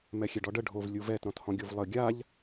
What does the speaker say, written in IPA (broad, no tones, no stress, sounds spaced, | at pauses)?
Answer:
m ɛ xʲ ɛ ɖ ɔ ɖ ə ɖʱ o v lʲ u v ɛ t ɾ ɔ̃ t h ɔ̃ ɡʲ o v lˠ ə ɡʲ a ʎ